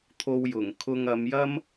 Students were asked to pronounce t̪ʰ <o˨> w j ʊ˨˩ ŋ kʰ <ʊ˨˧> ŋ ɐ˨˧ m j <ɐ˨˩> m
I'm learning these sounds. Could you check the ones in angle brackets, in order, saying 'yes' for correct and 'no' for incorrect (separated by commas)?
no, no, no